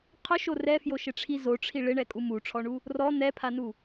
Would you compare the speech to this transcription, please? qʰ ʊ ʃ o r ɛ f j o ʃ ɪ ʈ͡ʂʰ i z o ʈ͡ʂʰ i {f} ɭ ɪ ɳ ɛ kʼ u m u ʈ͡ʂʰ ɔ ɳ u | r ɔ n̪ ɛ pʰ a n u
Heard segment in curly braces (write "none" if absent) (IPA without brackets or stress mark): none